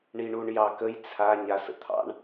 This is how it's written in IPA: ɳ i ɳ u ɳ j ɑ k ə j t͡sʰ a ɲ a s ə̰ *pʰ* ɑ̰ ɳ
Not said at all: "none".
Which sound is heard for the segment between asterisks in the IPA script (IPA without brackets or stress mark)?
t̪ʰ